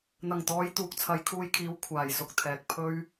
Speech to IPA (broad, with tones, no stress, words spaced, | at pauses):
n̪ɐ˨˩ŋt̪ɔː˨˧j t̪uː˨k̚t͡sʰɐ˨˧jkʰuː˧jkʰiː˨˧w kʷʰaː˨˩j sʊ˥k̚t̪ʰɛː˨k̚ pʰɵ˥ɥ